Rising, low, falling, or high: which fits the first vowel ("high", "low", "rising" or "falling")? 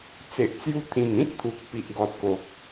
low